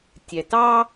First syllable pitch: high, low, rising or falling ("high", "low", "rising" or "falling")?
low